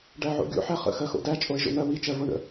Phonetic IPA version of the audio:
ɖ æ ʕ o̰ ɡʲ o̰ ħ æ χ ə̰ x ɜ x o̰ d æ t͡ʃʼ o e̯ ʒ o̰ n̪ ɜ w i t͡ʃ ɜ v o ɳ ə̰

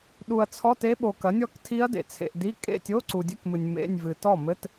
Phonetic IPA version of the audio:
ɗ u˨ ɐ̯ t͡sʰ ɔ˧˥˧ t e˦˥ ɓ o˨ k ɐ˩˥ nʲ ɔ˥˧ k tʰ i˦˥ ɐ̯ d ḛ˨ t͡sʰ ḛ˨ ʔ d i˧˥˧ kʼ ḛ˥˩ tʲ o˧˥˧ ǀ u˨ dʲ ɛ˧˥˧ k m ɨ˨ nʲ m ḛ˧˥˧ nʲ v ɨ˨ t ɔ˥˩ m ɘ˧˥˧ t

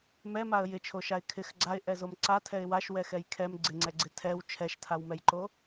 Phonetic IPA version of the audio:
m ɛ m a ə̯ j ɪ t͡ʃʰ o ʃ a ɪ̯ kʰ ɪ x ɡ͡ǀ a ɪ̯ ʔ ɛ z o m ǀ a tʰ ɛ ɪ̯ w a ʃ w ɛ x ɛ j kʰ ɛ m ɡ͡ǀ ɪ ŋ͡ǀ ɛ ɡ͡ǀ ɪ tʰ ɛ w t͡ʃʰ ɛ ʃ tʰ a w m ɛ j ǃ o

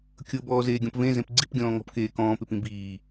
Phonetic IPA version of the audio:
kʲ ɤ b ɔː z eː ɡʲ ɔ̃ p v ẽ z ẽ p ɡ͡ǀ i p ɡʲ ɔ̃ː ŋ ɔ̤ p k eː k ɔ̃ː p e p ĩ b iː

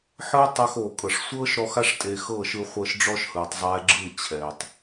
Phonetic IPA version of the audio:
ħ ɯː˦ tˤ a˧ x oː˨ kʼ ɤ˨ ʂ sʷ ɤː˦ ʃ ɾ ɔ˧ x a˦ ʂ tʼ e˧ x ɤ˦˨ ʃ ɯ˧ χʷ ɤ˧ ʃ ɖ͡ʐ ɔ˦ ʃ h ɯː˨ tˤ zˤ ɛː˧ ɡ͡ǁ ɯ˦˨ t͡ɕʰ ɛː˨ tˤ

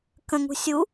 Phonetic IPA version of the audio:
k ə̃ ŋ ṳ sʲ u

